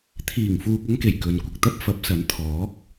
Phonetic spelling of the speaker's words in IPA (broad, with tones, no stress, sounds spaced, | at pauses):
t̪ʰ iː˨˩ ŋ f uː˨ k̚ ɐ˥ ŋ k e˨˩ j k ɵ˨ n kʷ ɪ˨ k̚ t̪ ɐ˥ p̚ f ɐ˨˥ p̚ s ɐ˨˥ n t̪ʰ ɔː˨˥ k̚